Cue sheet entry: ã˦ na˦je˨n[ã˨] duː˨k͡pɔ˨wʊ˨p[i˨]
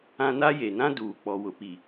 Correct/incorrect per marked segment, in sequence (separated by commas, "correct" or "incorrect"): incorrect, correct